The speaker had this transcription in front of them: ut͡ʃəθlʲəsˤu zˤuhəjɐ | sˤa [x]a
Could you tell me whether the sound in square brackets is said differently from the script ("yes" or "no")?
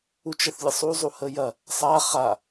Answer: yes